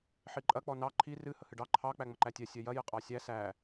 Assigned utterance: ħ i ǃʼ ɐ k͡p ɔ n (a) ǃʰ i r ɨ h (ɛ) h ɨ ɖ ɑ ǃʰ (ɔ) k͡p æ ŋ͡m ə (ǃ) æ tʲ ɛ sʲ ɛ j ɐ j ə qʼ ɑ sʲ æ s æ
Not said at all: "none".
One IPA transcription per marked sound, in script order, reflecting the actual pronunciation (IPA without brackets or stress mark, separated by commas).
ɑ, ə, ɑ, ǃ